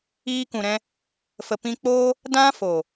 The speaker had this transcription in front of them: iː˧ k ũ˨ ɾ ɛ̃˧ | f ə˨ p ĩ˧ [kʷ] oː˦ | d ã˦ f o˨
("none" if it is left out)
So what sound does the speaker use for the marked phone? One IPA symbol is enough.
k͡p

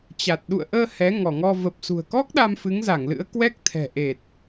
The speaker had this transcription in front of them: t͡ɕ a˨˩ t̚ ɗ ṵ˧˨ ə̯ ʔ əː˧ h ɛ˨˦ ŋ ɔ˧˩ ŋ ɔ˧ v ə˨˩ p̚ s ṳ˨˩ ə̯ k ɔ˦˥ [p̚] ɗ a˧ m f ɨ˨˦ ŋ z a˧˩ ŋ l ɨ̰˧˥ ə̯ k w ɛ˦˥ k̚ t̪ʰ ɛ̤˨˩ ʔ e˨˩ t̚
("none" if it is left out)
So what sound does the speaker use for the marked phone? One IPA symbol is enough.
k̚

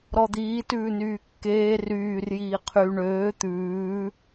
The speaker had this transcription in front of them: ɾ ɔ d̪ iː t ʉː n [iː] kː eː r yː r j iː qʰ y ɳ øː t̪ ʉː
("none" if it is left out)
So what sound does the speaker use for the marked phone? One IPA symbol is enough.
yː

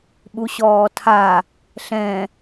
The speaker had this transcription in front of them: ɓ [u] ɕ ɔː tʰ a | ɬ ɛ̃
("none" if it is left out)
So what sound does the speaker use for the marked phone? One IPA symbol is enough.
u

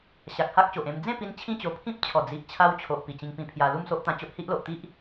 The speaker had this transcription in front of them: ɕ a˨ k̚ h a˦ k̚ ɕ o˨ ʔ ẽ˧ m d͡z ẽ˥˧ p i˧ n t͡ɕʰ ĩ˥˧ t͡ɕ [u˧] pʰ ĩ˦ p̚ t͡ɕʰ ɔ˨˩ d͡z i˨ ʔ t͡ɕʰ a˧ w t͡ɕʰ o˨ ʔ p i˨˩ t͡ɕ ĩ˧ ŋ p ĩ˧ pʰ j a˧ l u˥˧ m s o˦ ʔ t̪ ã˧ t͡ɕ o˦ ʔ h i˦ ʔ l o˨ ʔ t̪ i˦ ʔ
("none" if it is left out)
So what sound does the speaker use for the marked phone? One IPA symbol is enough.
o˧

